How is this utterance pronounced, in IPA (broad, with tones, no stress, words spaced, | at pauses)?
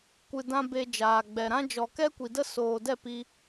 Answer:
kʷɨ˨dã˧ be˨ d͡ʒaː˨ɡ͡bɛ˨ɾã˦ d͡ʒɔ˨kɛ˦kʷi˨də˦ soː˨dɛ˦˨pi˧